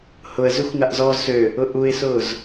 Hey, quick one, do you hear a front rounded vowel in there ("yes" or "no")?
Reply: yes